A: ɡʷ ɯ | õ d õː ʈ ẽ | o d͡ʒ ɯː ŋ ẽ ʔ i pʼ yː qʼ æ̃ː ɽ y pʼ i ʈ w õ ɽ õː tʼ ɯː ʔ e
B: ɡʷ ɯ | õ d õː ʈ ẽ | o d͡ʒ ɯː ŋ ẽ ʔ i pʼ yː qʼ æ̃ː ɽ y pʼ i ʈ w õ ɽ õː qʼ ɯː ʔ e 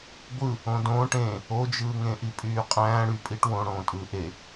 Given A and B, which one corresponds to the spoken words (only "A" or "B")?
A